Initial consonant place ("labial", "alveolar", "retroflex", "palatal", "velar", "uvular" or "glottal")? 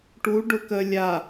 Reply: retroflex